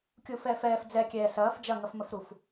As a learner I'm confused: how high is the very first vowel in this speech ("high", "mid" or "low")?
high